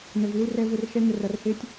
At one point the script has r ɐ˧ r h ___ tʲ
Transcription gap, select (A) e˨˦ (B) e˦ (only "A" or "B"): B